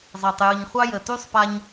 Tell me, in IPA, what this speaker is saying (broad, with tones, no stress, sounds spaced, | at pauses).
zˤ e˩ tˤ j ɯ˩ ɲ χʷ ɑ˥ j ə˩ t y˥ sˤ p a˥ ɲ